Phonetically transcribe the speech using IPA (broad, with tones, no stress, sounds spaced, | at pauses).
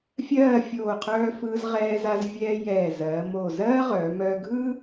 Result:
fʲ ɜː˥˧ fʲ oː˧˩ qʰ œː˧ f ɯː˧ z ʁ ɛː˧ z a˧ z vʲ ɛː˧ j ɛː˧˩ z ɜː˩˧ m oː˧˩ z ɜː˥ ʁ œː˩˧ m œː˧ ɡʱ ɯ˥